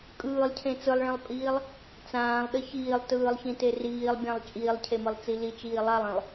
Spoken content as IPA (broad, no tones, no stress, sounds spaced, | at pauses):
kʼ ɯː lˠ cʰ ẽ t͡s ɯ lˠ ɭ ẽ lˠ pʼ iː lˠ | t͡s ãː lˠ ɗ ə ç iː lˠ t ɯː lˠ ç ĩ t e r iː lˠ bʲ ã lˠ t͡ʃʼ iː lˠ cʰ e m ɯ lˠ t͡s i l i t͡ʃ iː lˠ a lˠ ĩ lˠ